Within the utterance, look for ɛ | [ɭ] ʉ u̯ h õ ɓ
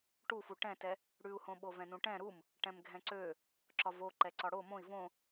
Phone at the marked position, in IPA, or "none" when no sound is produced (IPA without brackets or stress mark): ɽ